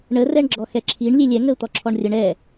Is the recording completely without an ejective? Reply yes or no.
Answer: yes